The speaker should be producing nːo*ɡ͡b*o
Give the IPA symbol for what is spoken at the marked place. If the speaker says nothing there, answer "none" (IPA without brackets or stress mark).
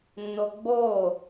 ɡ͡b